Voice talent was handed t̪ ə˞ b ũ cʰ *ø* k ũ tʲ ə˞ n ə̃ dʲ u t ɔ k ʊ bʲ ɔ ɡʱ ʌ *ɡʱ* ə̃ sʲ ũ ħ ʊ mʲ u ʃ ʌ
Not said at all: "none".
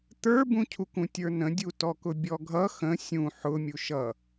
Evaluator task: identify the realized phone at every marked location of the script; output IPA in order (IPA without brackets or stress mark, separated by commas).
u, x